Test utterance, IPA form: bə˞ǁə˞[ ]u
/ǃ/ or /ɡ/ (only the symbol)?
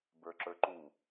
ǃ